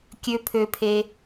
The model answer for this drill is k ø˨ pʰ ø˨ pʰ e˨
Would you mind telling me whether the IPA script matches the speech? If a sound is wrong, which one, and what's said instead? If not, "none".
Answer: k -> kʲ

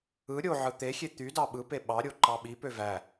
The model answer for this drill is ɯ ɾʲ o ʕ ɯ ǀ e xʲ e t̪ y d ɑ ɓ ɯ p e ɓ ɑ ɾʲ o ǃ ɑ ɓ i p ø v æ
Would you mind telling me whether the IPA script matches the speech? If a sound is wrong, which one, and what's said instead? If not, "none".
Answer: ǀ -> t̪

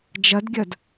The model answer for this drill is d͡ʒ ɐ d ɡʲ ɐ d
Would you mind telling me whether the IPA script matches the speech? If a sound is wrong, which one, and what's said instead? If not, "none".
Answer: none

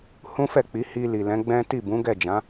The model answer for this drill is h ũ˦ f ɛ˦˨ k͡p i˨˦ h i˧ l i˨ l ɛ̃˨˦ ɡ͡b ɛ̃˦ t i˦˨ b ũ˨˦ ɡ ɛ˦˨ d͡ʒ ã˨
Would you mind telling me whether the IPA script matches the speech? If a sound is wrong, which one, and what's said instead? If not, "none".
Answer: ã˨ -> ã˨˦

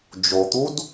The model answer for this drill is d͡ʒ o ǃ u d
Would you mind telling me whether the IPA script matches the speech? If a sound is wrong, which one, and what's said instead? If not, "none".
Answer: ǃ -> t̪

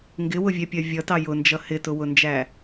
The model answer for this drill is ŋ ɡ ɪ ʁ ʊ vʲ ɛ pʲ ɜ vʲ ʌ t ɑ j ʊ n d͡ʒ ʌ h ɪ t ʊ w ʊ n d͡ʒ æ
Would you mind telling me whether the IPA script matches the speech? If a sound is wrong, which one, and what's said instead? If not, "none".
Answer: ʁ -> w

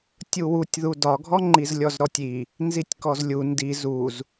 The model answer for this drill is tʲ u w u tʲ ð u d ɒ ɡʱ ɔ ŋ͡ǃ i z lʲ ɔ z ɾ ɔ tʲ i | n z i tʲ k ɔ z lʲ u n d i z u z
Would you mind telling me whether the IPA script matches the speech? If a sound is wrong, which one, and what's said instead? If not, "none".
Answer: none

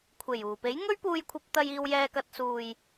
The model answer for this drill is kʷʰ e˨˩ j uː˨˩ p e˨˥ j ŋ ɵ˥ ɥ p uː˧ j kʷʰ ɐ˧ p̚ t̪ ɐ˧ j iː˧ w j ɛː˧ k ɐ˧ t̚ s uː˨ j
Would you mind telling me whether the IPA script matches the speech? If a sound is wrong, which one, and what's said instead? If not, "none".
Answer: none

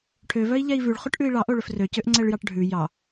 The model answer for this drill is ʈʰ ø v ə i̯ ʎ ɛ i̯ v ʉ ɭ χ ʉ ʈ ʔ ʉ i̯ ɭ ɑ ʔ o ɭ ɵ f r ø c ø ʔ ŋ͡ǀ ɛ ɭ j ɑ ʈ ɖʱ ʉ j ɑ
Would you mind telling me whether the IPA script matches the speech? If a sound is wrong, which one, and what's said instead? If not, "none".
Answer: ə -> œ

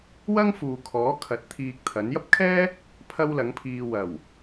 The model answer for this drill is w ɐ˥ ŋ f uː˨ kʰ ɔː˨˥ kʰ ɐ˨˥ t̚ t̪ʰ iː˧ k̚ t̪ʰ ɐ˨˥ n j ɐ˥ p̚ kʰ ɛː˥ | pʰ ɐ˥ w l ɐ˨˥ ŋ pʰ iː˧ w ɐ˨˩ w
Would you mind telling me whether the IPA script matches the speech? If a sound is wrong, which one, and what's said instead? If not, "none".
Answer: none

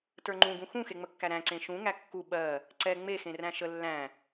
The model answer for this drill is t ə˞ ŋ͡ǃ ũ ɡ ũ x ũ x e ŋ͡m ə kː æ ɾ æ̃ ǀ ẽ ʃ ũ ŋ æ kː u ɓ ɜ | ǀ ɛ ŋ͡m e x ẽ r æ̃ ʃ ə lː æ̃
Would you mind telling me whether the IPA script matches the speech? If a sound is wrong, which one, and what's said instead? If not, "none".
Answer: none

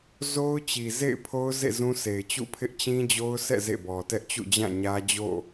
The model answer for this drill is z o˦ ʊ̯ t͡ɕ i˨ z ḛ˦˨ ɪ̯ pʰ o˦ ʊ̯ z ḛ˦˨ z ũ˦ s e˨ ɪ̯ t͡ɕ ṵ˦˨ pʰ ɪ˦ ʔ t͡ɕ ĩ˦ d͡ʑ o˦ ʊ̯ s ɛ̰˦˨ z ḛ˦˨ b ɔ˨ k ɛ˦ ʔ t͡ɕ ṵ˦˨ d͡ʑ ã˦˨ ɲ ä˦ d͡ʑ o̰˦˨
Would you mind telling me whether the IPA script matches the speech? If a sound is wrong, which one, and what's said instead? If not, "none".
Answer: k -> t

